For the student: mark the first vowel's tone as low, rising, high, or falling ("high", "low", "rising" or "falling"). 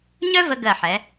high